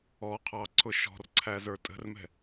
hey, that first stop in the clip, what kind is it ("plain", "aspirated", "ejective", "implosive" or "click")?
aspirated